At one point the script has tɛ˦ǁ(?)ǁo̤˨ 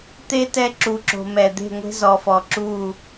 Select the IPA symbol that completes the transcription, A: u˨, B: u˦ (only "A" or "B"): A